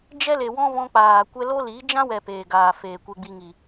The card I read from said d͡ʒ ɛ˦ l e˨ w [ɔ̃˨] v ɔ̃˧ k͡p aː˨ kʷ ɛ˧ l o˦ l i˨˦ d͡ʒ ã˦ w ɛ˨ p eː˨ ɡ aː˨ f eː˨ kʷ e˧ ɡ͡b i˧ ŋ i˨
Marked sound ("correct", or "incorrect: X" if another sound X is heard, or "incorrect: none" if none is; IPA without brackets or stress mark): incorrect: ɔ̃˦